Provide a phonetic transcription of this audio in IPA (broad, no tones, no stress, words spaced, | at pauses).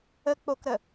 ə k͡pokɾə